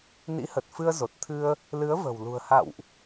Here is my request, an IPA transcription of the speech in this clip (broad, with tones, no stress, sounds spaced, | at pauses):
n ḭ˧˥ h ə˨˩ t̚ f ɨ˧ ə̯ z o˨˩ t̚ t̪ʰ ɨ˧ ə̯ | l ɨ˨˦ ə̯ v ə̤˨˩ w l ṳ˨˩ ə̯ h a̰˧˨ w ʔ